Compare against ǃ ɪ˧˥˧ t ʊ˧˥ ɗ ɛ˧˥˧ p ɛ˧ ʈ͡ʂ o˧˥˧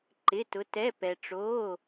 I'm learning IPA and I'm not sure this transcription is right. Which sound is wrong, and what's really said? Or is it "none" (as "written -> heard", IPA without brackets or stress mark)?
ɗ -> t